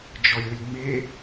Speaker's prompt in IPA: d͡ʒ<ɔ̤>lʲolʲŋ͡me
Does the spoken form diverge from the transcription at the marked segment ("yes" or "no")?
yes